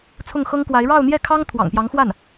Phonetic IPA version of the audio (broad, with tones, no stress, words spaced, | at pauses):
t͡sʰʊ˥˩ŋxɤ˥ŋkwa˧˥ɪ̯ ɻɑ˥˧ʊ̯n̪jɛ˥˩kʰɑ˥ŋ t̪ʰwɑ̰˨˩ŋpjɑ˧˥ŋxwa˥˩n